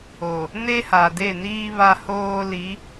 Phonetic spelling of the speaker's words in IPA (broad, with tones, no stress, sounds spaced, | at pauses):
o˨ | n e˦ h a˨ d e˦˨ n iː˦ β a˦ h oː˦ l i˨˦